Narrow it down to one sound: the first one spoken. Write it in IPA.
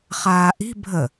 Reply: χ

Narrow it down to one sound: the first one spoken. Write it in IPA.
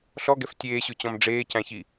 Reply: ɬ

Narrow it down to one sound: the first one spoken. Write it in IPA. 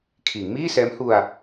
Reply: kʰ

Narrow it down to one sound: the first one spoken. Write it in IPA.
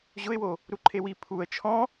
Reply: ʑ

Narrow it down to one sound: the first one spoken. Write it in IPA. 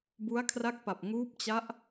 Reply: b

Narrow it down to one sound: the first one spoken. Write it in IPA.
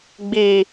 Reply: ɡ͡b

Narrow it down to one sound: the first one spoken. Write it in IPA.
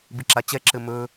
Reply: b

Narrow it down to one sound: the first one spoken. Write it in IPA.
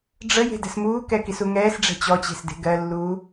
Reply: ɖ͡ʐ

